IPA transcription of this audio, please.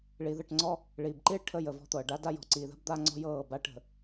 ɭi˨ðə˦˨ʈŋ͡ǀɔ˦ | ɭiː˨bǃiː˦ɭ ʈʰəː˦jəː˨vɔ̤˦t̪ɤː˨ ɖa˦da˦jɔ̤˨ ǀiː˨ðə̤˦b d̪a˦ŋ͡ǀɔ̤˦jɤː˦˨ ba˦ʈ ə̤˨

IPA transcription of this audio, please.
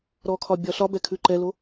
ɾɔkʰɒ bʲɒɬɒbɛ kʰʉǃɛlo

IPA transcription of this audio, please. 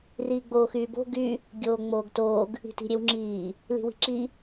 riːɡ͡boːxyːbo̤ ɡy | ɡʲoːŋ͡moːɡtoːɡ | i̤ti̤ɾʲewŋ͡ǁiː | li̤wi̤ǁi

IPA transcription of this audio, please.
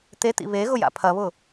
t̪et̪ḭ βeɣʊ ja̰pʰɐβʊ

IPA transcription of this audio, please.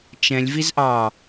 t͡ʃɛ̃lʲ vizʔɑ

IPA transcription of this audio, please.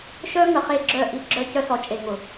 ʃœ˦ ŋə˨ χe˦˨ɡ͡ǁœ˦˨ʔi˦ ɡ͡ǁœ˦cœ˦sɔ˨˦ t͡ʃʼe˨ŋʊ˨

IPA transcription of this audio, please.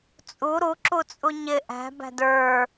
t͡sʼu ɾuǁut͡sʼu ɲɪ ʔæ̤bæ̤d ə˞

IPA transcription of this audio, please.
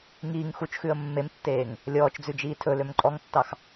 ŋiːŋ xut͡ʃxʉə̯ mːemtːeːŋ | lʲɔːt͡ʃd͡zʉd͡ʒiː tʰɵløm ǃʼɔŋtːɑx

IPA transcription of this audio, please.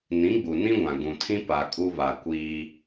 nĩ˨˦ɡ͡bu˨nĩ˦ɡʷã˨ ɡũ˨tʰĩ˦ pa˨ kʼu˦βa˨kʷiː˦

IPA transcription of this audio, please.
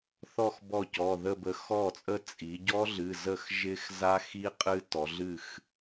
θɔ˥˧x bɔ˥˩cɔ˩˧˩ðə˥˧bə˧ xɔ˥˩t͡sʼə˥˧ t͡sʼi˩˧ɟɔ˦˥ ɮɨ˩˧˩zə˥˩xʒɪ˦˥x za˦˥xi˦˥ qʼɨ˦˥ tɔ˩˧ɮɨ˥˩x

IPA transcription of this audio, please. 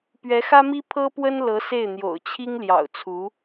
pɥɛ˧˥xä˥mi˥ pʰɤ˥pwə˥n lɤ˧˥se˥˩ɪ̯n̪jo̰˨˩ʊ̯t͡ɕʰi˥ŋ ljɑ̰˨˩ʊ̯t͡sʰu˧˥

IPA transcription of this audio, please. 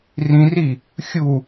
rĩri | xʲu

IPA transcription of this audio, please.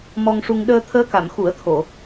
mɔ˧ŋʂu˧ŋ ɗəː˧t̪ʰəː˧˥ka˨˩˨m xu˨˩˦ə̯t̪ʰo˨˩˨

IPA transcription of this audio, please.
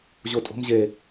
ʑotʼo̤m ʑe

